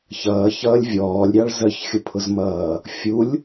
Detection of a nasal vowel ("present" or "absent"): absent